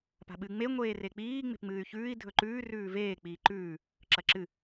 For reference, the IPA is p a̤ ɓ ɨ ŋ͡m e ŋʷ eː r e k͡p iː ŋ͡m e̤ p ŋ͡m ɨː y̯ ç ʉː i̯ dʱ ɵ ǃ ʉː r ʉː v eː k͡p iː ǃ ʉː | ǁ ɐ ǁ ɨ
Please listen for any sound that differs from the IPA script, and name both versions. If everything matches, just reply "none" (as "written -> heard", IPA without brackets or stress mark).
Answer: none